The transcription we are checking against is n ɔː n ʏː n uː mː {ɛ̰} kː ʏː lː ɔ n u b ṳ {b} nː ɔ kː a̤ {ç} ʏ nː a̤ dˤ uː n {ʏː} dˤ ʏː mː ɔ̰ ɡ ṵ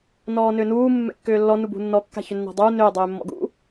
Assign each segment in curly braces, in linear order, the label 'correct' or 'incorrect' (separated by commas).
correct, incorrect, correct, correct